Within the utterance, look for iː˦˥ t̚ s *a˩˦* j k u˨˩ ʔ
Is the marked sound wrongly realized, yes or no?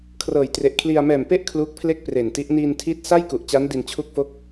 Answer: yes